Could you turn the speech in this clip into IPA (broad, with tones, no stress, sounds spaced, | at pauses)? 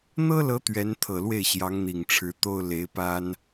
n̪ ɤ˥ l ɤ˧˥ t̪ ɥ ɛ˧˥ n t̪ʰ ɤ˨˩ l w e˥˩ ɪ̯ ɕ j ɑ˧˥ ŋ n̪ i˨˩ ŋ ʈ͡ʂʰ ɻ̩˧˥ t̪ o˥ ʊ̯ l e˧˥ ɪ̯ p a˥ n